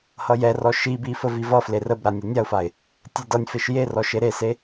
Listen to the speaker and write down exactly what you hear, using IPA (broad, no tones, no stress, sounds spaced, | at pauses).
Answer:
h ʌ j ɛ r ɔ ʃ i b i f ə v i v ʌ f l e r ə b ɾ a nʲ ɛ nʲ a ʊ̯ f a ɪ̯ | tʲ e d ʌ nʲ f e ʃ j e r ɔ ʃ e ɾ e s e